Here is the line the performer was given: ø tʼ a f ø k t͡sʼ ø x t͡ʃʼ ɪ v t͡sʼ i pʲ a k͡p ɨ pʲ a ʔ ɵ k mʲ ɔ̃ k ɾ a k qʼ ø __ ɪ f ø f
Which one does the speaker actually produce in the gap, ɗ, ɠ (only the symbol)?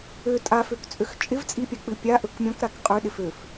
ɗ